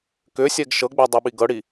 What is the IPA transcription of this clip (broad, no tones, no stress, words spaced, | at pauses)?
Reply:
kʏsʲɛɡ ʃɤɡ͡bɛdˤiɓi ɡɤɽi